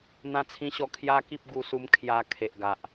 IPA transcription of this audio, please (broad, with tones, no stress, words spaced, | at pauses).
n̪ã˧t͡sʰĩ˧ɕɔ˧ kʰja˦ki˦p̚ ɡu˧su˧m kʰja˧ kʰe˨ʔɡa˨ʔ